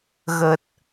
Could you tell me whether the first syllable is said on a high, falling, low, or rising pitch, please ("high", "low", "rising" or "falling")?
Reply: low